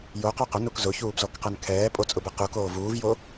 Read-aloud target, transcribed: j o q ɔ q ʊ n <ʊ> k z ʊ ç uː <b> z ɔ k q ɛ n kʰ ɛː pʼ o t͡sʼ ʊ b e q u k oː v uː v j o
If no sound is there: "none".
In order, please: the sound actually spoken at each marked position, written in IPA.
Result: u, b

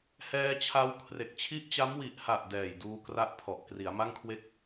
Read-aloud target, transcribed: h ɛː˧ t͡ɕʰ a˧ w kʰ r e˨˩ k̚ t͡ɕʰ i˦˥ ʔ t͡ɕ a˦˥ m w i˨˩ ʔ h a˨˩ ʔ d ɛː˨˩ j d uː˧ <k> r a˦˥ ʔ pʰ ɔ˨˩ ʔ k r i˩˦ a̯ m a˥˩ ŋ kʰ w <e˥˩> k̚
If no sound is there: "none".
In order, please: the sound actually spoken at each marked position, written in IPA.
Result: k, e˥˩

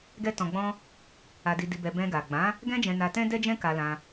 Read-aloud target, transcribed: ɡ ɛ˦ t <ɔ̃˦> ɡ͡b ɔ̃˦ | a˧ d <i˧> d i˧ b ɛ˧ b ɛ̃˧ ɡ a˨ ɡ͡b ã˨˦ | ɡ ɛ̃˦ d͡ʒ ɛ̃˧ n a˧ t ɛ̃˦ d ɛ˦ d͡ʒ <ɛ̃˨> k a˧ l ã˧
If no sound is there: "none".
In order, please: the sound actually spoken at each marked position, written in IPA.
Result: ɔ̃˧, i˧, ɛ̃˦

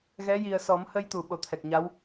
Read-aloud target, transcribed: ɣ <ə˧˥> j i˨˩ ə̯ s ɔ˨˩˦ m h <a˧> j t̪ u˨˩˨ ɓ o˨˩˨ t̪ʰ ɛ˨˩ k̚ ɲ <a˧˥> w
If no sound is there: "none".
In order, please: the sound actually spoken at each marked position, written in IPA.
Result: ɛ˧˥, ə˧, a˧˥

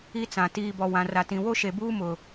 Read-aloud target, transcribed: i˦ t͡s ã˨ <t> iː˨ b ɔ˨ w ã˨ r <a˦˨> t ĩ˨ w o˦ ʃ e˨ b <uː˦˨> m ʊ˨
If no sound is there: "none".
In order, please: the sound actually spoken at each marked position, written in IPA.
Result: t, a˨, uː˦

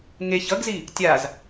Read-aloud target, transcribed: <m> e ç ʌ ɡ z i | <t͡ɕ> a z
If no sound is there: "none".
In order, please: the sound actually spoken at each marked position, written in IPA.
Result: ŋ, tʲ

